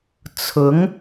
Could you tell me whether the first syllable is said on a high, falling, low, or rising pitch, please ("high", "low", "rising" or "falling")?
rising